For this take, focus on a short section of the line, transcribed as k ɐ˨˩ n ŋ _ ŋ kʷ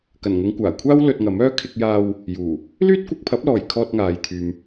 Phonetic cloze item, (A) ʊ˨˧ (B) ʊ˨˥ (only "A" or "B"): A